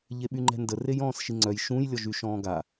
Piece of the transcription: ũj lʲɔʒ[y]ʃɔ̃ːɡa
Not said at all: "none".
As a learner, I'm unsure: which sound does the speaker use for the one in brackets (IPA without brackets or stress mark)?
y